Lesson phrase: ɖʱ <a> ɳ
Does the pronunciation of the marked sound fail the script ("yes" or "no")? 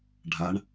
no